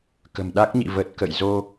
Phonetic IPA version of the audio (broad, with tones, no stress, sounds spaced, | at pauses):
k ə̤˨˩ m ɗ a˦˥ k̚ ɲ ḭ˧˨ v ə˨˩ t̚ k ə̰˧˨ j z o˧